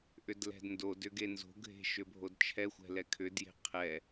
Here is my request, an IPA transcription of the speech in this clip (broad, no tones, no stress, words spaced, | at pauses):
ʔʏdlɛ̤dndodʏ ɡenzo̤ɡʱe̤ ʃʏbʱodt͡ʃʰɛxʷɛ̤ lɛkʰʏdje̤ qʰɛ